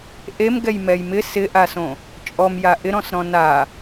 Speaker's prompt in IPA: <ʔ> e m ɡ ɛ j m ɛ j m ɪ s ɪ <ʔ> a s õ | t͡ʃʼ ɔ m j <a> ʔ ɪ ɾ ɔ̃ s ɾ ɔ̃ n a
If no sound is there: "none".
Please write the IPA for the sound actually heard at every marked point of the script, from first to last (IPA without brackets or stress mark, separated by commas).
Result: ʔ, ʔ, a